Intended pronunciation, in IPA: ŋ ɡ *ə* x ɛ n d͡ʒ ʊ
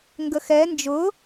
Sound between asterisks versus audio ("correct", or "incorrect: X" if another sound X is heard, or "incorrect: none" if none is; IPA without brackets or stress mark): correct